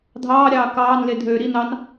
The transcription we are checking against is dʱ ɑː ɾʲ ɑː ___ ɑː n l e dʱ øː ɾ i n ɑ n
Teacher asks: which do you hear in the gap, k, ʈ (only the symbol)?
k